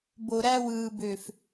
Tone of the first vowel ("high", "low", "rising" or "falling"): low